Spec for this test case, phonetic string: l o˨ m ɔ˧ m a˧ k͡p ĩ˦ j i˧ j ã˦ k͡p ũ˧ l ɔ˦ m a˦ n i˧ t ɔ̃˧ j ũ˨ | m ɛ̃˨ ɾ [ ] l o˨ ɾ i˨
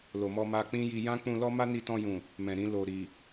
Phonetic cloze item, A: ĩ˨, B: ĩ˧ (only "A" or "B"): B